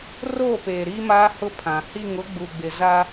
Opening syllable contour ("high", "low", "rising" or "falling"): falling